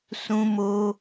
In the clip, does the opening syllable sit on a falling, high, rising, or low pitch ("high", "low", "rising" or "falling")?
high